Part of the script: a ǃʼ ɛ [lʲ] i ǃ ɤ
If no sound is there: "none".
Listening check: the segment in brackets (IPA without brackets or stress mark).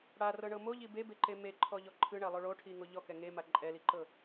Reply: l